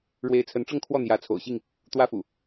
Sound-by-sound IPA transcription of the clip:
ɻwe˨˦ɪ̯t͡sʰə˨˦nʈ͡ʂɤ˥˨ŋ kʰwɔ˥˨n̪jä˨˦t͡sʰo̰˨˩ʊ̯ɕi˥˨ŋ | t̪wä˦fṵ˨˩

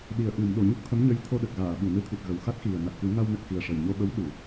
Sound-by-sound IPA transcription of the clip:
ɗi˨˩ə̯ʔɨ˨˩˨mɗo˨˩˨ ɲu˦˥k̚t̪ʰə˧˥mɲə˧˥j t̪ʰo˧ɗə˨˩k̚ ɣaː˨˩˨ɓu˨˩˨nɨ˧t̪ʰi˨˩t̚ ɣə˨˩wxa˦˥t̚xi˨˩ə̯ na˨˩t̚kɨ˨˩˦ ŋa˧wnə˨˩k̚xi˨˩ə̯ ʂə˨˩jɲo˧ɓə˧˥w ɗu˨˩˨

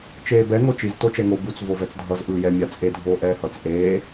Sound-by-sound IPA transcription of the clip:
t͡ʃeːbɛ ŋot͡ʃiz tot͡ʃɛŋo but͡s vovɛt͡sdʱʌz ʔɯːjɛ mʲat͡sʼe dʱoːʔɛːhʌt͡s ʔeː

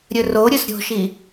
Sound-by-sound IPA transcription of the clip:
ɾʲɵroɾʲɵs ɾʲo̤ʃi

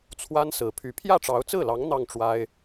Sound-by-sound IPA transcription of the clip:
t͡sʰwa˥n sɹ̩˨˩pʰy˧˥ pʰjä˥˩ʈ͡ʂɑ˧˥ʊ̯t͡sɹ̩˥˩lɑ˧˥ŋ n̪ɑ˥˩ŋ ʈ͡ʂwa˥ɪ̯

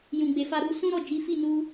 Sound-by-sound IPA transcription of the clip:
jũ˨ɡ͡be˨fa˧ ɾu˧sũ˦ ɾɔ˦˨d͡ʒi˨˦fi˦˨ nu˧

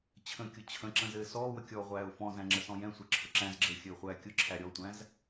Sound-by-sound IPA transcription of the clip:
t͡ɕʰə̃kʲʊ t͡ɕʰə̃ǁə̃ zɘːsɔːwə kʲɔːʁʷæːʊ̯fɔ̃zæ̃ ŋ͡ǁəsɔ̃jɛ̃sʷɛ ǁʰʊǁæ̃zɡ͡ǁəː xʲɘːχʷæːkʲʊǁʰæ ɾʲɔtʷæ̃z

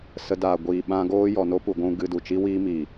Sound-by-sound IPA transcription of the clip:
sə˧da˨ ɡʷiː˨ ɓã˧ɡoː˦ jɔ˨ no˦pu˨ɡʷũ˧ ɡɨ˧ du˨t͡ʃi˦wiː˦miː˨

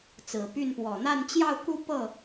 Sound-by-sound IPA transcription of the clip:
t͡sɹ̩˨˩py˥˩npwɔ˨˩ n̪a˥˧nt͡ɕjɑ˥˧ʊ̯ku˥˧ pɤ˥˩

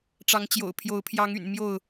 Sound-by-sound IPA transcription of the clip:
ʈ͡ʂɑ˨˦ŋt͡ɕjo̰˨˩ʊ̯ pʰjo˨˦ʊ̯ pʰjɑ˨˦ŋy̰˨˩n mjo˥˨ʊ̯

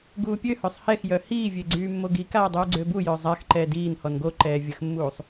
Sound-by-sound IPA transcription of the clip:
ɡuːpʲøhœsˤ hɛxjœ hiːvʲe ɡ͡ǀyːmːoɡikaː dˤyːɡ͡ǀøbujœ zˤax ǃɛːdiːnhɔn ɡo ǃɛːvʲəxmːuːsˤ

